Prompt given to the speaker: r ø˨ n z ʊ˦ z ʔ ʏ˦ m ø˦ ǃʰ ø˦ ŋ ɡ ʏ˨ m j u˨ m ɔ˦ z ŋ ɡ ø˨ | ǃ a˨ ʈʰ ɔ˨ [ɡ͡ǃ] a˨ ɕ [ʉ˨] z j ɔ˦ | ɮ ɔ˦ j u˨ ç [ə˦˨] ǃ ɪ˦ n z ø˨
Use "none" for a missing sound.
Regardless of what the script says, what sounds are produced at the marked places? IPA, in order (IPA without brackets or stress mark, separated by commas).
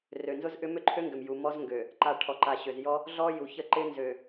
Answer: ǃ, ø˨, ə˦˨